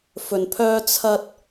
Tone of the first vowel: low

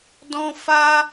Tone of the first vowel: high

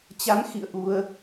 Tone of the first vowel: rising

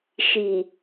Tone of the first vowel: low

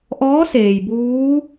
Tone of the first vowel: rising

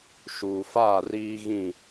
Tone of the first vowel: low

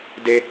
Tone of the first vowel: high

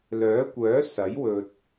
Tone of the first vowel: rising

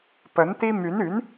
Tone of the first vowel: rising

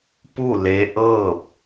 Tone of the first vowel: falling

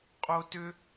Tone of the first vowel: high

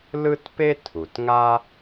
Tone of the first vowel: high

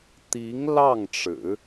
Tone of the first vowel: rising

